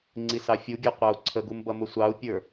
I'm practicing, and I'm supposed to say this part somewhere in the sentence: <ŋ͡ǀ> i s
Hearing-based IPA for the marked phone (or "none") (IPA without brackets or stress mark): ŋ͡ǀ